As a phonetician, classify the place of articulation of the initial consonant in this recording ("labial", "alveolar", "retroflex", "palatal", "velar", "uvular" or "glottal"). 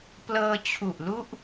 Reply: labial